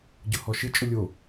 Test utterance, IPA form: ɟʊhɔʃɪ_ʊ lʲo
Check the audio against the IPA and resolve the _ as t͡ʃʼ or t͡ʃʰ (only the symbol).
t͡ʃʼ